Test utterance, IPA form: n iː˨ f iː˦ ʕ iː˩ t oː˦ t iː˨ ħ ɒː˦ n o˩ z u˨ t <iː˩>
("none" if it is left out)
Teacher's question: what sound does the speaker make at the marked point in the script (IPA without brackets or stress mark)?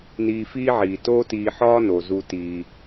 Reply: iː˩